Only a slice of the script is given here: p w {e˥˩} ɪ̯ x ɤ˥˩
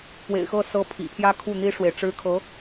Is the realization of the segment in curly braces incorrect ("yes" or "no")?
yes